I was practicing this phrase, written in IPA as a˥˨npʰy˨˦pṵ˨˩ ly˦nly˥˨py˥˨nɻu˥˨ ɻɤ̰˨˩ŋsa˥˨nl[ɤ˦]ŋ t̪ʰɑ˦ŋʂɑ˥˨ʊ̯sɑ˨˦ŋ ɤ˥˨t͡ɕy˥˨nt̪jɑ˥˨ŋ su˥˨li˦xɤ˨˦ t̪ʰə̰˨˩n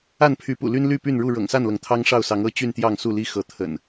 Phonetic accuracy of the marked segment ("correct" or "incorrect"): incorrect